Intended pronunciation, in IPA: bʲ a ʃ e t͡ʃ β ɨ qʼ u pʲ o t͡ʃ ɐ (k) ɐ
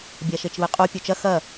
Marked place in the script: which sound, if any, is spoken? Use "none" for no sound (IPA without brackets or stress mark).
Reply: x